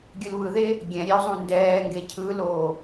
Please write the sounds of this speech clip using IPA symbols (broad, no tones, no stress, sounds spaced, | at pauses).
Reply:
ɡʲ ɯ l β ɯ ð e | ɡʲ ɛ̃ ɾʲ e o̯ zˤ ũ n d ɛː ŋ ɡ e cʰ ɯ l oː